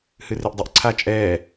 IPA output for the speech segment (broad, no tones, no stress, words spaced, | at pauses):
hɨriʔdˤɛʔǀʰa t͡ʃʼɛː